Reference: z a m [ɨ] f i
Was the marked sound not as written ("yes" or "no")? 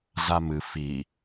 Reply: no